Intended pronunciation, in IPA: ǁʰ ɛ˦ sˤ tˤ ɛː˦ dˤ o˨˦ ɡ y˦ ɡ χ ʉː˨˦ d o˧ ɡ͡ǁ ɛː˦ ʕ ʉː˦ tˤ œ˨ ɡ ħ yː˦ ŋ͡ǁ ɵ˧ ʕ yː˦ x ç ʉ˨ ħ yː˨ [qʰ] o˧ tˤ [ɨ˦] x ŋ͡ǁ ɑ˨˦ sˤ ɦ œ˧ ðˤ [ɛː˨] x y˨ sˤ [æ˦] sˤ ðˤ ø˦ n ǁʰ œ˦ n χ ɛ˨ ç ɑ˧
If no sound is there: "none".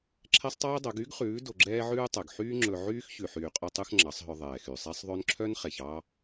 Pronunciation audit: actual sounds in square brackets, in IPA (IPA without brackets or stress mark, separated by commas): qʼ, ʉ˦, ɛː˨, æ˦